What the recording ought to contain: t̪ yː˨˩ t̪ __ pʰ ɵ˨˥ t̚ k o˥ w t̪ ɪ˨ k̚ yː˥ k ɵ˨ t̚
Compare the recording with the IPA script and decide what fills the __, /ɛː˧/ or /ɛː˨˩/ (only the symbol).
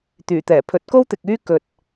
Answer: ɛː˨˩